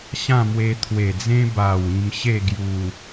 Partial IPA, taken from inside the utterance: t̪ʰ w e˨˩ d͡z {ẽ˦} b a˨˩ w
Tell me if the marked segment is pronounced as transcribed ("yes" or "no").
yes